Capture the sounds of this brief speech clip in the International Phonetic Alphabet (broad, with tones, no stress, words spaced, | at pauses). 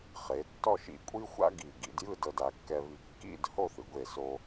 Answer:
χe˩˧ tːɔ˥˧ʃḭ˧˩kʷʼi˥xʷa̰˥ ɡi˧˩ ɡḭ˩˧djɯ˥˧ dɤ˧da˩˧kːɛ˧βi˧˩ kːḭ˥˧d ho˥˧θɯ˩˧ɡʷe˧˩so˧